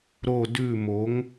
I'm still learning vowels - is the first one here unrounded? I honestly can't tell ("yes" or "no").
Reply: no